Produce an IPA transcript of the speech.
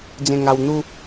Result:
d͡z ẽ˧ ŋ a˧ w n̪ u˦

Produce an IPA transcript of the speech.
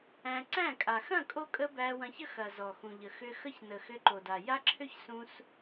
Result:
æ̃˧ ǀ æ̃˦˨ kʼ a˨ x ɐ̃˦˨ kʼ o˧ kʼ ə˧ b æ˧ w ɐ̃˧ ç ə˦ x ɐ˨ z ɔ˨ x ũ˨ ʎ ə˨ x ʏ˧ x ə˦ ç n ə˨ x ʏ˧ ǃ o˨ d a˨ j a˦ ǁʰ ʏ˦ ç s ũ˧ s

